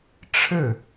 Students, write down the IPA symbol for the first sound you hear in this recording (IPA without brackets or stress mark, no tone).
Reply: ʈ͡ʂʰ